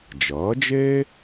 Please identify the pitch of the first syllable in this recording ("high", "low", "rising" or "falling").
rising